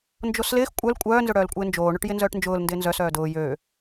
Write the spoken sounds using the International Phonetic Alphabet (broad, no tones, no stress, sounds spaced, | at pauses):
n d͡ʒ o s l ɪː x kʷʼ œ l kʷʼ œː n z ʊ ɽ œː l kʷʼ ɪː n d͡ʒ oː ɳ ø ʈ j ɪ n z œː ʈ n d͡ʒ ʊː l n d ɪː n z œ s œː d ʊː j ø